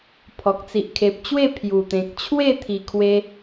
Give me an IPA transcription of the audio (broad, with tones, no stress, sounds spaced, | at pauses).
pʰ ɔ˨ k̚ t͡s i˨ ʔ kʰ e˨ p̚ t͡ɕ w e˥˧ pʰ j u˨˩ t̪ ẽ˨ k̚ t͡ɕʰ w e˥˧ t̪ʰ i˧ kʰ w e˦